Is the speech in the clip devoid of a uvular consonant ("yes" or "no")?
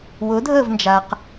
no